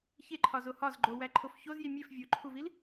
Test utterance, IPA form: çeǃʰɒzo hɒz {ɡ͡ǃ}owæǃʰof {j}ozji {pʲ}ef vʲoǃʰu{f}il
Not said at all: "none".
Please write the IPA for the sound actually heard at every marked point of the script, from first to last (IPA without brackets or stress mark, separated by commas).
ɡ͡ǃ, ç, mʲ, v